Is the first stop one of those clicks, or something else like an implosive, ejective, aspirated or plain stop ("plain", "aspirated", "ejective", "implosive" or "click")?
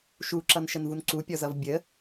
click